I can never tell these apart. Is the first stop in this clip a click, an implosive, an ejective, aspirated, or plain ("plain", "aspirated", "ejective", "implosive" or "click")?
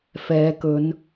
plain